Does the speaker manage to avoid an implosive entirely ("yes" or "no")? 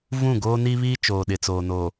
no